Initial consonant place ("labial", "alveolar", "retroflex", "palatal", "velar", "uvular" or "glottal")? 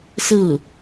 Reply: alveolar